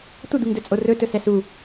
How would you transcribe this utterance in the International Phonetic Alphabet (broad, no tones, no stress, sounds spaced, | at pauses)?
tʷ ə d̪ u ŋ d ɵ t͡sʼ o r ɵ t ɵ s ɛ s u